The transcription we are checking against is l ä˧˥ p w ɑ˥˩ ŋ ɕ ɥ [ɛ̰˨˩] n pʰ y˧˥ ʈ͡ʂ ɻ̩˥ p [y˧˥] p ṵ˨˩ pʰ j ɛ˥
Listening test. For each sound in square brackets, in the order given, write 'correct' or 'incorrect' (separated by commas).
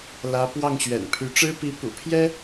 correct, incorrect